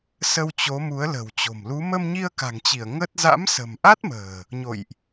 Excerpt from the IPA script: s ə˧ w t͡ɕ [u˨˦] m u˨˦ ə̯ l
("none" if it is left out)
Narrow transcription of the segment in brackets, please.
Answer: o˨˦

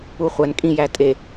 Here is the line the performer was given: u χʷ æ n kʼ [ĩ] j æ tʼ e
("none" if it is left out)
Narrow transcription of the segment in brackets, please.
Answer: ĩ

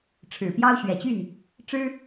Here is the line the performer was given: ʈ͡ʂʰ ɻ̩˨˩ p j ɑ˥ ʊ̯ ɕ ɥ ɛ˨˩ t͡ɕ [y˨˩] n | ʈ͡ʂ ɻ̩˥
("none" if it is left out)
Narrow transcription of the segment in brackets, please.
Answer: y˥˩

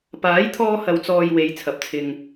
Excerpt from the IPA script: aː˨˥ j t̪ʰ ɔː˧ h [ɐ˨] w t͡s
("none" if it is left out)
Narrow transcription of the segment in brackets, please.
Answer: ɐ˨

